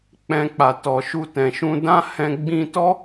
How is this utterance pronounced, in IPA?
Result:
k͡p ɛ̃˧ k͡p a˨ t ɔ˨ ʃ u˧ t ɛ̃˨ ʃ ũ˧ d ã˦ h ɛ̃˧ ɡ͡b ĩ˧ t ɔ˦

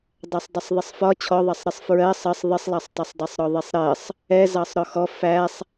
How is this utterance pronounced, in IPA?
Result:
dˤ æ sˤ dˤ ə sˤ ðˤ ɪ sˤ f ɒ t͡ɕʰ ɔ ðˤ ɑ sˤ ɾ ɪ sˤ f ɹ ɜ sˤ ə sˤ ðˤ ɪ sˤ lˠ ɑ sˤ tˤ ɛ sˤ dˤ ɛ sˤ ɾ ɔ ðˤ i sˤ ɾ ɜ sˤ | ɛ z ɑ sˤ ɾ ɔ x ɔ f æ sˤ

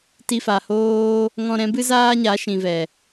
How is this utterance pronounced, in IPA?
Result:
t i˧ f a˨ h oː˦ | ŋ ɔ̃˧ ɾ ɛ̃˨˦ b ɨ˦ z aː˦ ɲ a˨˦ ʃ ĩ˨ v ɛ˨

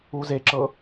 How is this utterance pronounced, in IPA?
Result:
u z e ǁ ɤ

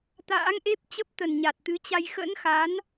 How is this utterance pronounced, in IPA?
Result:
t̪ a̰ː˧˥ ŋ ʔ e˦˥ p̚ t͡ɕ ə˦˥ p̚ t̪ ə˨˩ n ɲ a˨˩ t̚ t̪ ɨ˨˦ t͡ɕ a˧ j x ə̰˧˥ n x a˨˦ n

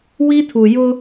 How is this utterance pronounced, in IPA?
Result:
w i˦ tʰ u˨ j ʊ˦

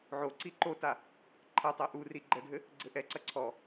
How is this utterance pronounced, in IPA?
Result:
ʕ o ǀ i ǃ o t a | ǃʰ ɐ tˤ ɛ ʔ u r i ɡ͡ǃ ɛ ɖʱ ɘ | ɡ͡ǀ ɘ ʔ ɛ ǀ ɐ ǀʰ ɔ

